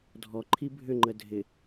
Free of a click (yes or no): no